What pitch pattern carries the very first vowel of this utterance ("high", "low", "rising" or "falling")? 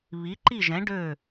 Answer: rising